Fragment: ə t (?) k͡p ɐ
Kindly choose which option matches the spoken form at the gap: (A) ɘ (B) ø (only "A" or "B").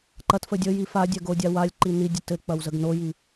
A